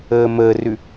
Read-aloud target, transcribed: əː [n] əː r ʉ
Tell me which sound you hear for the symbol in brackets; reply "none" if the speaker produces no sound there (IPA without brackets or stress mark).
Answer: m